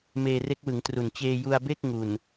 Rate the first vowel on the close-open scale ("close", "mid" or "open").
mid